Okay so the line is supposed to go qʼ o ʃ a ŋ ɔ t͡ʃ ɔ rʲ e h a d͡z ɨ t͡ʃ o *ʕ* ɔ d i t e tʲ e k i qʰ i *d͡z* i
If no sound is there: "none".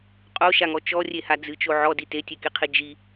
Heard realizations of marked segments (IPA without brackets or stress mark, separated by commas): ʕ, d͡ʒ